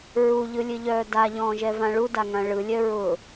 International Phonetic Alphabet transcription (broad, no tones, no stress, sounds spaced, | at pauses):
ɹ u ʎ ɯ lʲ ɨ ʎ œː d a ʎ ɔ̃ː ʒ ɛ v ã ɭ u d a ŋ ã ɭ ɯ lʲ œ ɹ ʊ